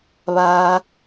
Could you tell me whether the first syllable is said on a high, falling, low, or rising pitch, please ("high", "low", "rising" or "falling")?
low